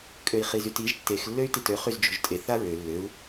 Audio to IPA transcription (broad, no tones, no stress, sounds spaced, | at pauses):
kʼ ø i̯ χ i z y t i ʒ tː e x lː ø y̯ t i t ø χ y z d͡ʒ o̤ ʒ tʼ e θ a ɹ ø lː ø u̯